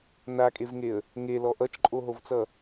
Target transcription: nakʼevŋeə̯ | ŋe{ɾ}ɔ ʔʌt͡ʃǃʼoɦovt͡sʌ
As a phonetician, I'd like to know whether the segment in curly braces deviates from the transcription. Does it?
yes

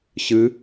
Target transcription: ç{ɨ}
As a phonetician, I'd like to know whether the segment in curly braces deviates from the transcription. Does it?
no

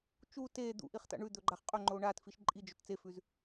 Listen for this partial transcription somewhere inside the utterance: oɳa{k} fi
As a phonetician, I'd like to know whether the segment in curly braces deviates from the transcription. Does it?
yes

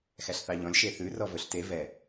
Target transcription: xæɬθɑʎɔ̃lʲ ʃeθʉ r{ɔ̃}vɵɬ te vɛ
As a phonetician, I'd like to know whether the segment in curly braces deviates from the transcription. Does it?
yes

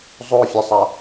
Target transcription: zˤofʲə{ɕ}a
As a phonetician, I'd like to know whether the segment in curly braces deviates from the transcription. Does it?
yes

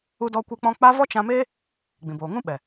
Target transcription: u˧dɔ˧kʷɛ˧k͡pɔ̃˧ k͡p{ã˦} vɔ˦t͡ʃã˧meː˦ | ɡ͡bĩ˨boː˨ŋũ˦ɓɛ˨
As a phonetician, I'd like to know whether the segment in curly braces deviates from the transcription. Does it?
yes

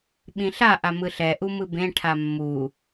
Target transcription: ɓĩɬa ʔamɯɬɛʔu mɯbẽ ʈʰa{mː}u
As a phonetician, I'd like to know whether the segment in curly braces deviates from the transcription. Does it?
no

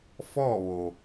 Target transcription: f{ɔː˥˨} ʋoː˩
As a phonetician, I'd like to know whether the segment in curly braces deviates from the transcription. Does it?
no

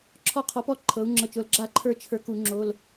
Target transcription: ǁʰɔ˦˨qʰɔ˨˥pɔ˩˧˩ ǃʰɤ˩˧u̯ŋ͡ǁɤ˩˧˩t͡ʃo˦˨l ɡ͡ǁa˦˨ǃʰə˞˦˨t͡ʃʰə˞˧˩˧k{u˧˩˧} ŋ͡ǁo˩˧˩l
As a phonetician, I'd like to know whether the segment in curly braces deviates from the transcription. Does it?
no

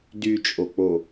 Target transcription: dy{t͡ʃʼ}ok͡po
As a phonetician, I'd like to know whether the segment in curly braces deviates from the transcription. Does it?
no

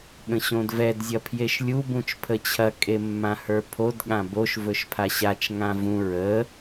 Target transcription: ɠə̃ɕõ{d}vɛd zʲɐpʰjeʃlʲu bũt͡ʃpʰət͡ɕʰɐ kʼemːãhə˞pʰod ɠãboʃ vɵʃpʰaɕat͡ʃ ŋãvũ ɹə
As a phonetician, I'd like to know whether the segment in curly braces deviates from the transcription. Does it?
no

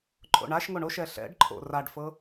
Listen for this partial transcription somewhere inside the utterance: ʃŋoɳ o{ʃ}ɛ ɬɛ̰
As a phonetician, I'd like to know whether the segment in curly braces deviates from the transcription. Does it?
no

